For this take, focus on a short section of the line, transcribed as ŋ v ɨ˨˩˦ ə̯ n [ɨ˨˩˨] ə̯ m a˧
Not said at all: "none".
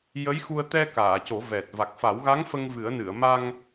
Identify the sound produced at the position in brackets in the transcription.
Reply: ɨ˨˩˨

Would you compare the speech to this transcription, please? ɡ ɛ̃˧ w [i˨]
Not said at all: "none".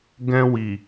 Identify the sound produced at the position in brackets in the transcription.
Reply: i˨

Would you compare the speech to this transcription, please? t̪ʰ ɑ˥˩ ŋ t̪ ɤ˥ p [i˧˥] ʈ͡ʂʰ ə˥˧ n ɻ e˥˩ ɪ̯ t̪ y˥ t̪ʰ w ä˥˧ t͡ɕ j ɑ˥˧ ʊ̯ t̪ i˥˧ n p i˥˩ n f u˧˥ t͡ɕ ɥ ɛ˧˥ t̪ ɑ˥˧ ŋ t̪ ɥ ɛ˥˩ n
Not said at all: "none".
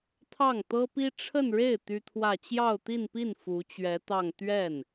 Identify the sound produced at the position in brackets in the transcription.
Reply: i˥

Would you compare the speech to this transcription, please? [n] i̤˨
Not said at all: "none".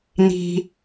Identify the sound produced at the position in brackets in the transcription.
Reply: n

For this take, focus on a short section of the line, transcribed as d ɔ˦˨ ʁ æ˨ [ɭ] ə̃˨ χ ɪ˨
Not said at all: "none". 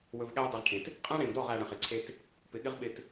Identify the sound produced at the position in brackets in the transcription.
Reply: ɽ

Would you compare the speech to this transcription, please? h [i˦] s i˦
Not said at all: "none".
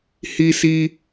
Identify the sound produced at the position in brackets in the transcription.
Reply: i˦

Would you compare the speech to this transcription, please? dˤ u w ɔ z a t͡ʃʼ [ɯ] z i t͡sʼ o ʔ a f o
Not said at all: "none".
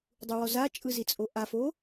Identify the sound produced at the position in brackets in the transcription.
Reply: ɯ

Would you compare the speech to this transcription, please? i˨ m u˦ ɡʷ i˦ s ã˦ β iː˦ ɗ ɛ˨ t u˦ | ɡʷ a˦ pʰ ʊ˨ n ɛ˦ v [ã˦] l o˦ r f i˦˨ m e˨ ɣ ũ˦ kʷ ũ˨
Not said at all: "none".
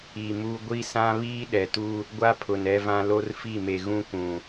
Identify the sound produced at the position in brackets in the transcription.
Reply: ã˦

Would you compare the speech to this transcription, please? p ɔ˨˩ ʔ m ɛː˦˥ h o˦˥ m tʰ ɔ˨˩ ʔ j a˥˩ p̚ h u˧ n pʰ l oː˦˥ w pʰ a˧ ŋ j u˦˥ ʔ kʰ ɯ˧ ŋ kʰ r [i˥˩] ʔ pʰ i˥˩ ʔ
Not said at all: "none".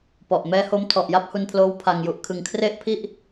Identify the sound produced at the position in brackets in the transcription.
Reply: e˥˩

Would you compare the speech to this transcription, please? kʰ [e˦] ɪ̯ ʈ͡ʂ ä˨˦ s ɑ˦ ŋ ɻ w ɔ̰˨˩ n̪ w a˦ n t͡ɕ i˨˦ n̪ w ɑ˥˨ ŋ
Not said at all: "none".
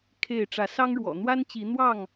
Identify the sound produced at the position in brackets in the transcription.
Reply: e˥˨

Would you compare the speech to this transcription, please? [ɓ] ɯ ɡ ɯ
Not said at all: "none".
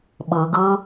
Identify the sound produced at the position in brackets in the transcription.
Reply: ɓ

